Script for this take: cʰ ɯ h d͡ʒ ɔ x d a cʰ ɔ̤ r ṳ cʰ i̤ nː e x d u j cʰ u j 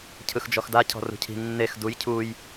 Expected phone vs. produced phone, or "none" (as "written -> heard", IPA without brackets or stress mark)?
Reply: h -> x